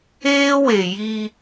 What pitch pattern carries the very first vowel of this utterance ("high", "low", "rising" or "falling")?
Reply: high